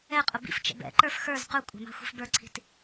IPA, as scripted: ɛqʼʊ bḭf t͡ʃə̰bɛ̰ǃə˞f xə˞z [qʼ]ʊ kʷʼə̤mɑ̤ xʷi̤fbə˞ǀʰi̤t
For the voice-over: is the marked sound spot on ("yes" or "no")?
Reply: no